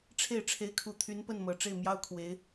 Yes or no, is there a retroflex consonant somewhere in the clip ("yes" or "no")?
yes